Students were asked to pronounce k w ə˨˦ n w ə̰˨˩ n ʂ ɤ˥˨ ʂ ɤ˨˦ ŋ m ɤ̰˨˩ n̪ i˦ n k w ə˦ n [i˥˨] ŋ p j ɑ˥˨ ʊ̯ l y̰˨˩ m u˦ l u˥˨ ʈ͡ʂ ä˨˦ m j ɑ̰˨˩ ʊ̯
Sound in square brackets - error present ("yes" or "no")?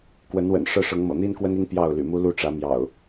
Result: yes